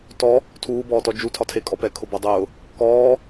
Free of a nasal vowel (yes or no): yes